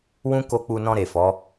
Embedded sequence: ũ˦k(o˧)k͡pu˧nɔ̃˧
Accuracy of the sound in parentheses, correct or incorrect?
correct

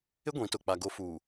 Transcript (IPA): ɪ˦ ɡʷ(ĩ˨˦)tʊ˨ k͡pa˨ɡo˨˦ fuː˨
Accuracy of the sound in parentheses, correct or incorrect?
correct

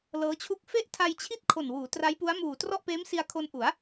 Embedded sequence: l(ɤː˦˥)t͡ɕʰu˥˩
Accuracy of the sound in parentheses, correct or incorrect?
correct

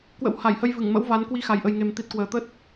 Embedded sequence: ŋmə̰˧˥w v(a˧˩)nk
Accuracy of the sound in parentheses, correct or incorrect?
incorrect: a˨˦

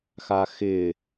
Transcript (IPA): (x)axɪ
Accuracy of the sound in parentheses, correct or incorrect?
correct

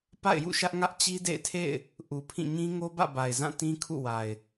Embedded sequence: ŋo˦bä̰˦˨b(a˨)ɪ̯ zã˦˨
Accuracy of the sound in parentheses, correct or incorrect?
correct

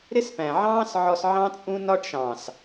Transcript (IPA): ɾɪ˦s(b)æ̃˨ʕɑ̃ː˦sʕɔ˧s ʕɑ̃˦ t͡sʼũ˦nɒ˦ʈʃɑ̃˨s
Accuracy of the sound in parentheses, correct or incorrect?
incorrect: p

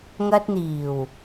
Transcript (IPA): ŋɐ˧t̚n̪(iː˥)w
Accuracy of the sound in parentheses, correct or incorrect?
incorrect: iː˨˩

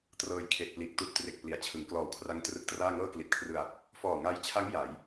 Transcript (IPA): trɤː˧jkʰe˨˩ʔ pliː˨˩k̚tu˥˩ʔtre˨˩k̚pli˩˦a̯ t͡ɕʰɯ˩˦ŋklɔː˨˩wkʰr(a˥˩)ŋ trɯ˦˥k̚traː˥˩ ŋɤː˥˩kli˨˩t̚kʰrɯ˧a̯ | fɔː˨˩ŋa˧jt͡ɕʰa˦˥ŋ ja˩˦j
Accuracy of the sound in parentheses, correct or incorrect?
incorrect: a˦˥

